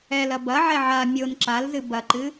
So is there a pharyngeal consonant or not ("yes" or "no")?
yes